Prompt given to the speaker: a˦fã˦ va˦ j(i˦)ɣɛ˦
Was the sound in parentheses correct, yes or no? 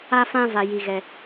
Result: yes